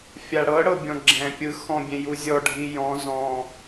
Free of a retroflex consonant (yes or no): no